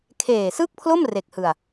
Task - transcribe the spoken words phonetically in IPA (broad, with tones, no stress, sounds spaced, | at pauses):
kʰ eː˨˩ s ɯ˥˩ k̚ pʰ l o˥˩ m r e˨˩ k̚ h ɯ˧ a̯